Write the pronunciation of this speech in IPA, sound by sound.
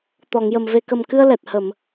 t̪ɔ˨˩˨ŋjə˨˩m ve˨˩kə˨˩mkɨ˧ə̯ lɛ˨˩t̚ hə˨˩˨m

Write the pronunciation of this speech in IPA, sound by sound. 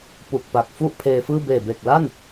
pu˨˩k̚pa˨˩k̚ fu˥˩ʔpʰeː˧fɯː˥˩ beː˨˩be˨˩k̚la˥˩n

